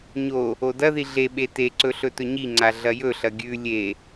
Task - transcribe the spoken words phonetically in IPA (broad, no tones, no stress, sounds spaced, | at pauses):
ɲ o | o d ɐ ð i ɮ e ɓ e t e ǀ ɵ ɬ ɵ t ɵ ɲ i ŋ͡ǀ a ɮ ɐ j ɵ ɬ ɐ ɡʲ ʉ lʲ e